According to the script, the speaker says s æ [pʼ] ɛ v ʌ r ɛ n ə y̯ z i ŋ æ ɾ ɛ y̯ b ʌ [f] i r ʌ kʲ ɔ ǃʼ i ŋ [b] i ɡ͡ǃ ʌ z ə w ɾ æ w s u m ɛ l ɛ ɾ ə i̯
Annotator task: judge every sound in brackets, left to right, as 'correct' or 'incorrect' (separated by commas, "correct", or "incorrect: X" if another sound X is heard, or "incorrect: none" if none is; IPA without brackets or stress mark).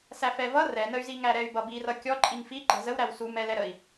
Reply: incorrect: f, incorrect: b, incorrect: f